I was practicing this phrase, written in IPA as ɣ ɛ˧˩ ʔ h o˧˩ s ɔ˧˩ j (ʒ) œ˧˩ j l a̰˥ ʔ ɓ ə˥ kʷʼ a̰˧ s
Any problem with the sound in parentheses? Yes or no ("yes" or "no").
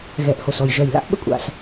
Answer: no